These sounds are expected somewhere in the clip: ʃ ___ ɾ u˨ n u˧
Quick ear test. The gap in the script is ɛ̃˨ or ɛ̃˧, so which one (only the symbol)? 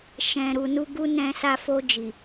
ɛ̃˨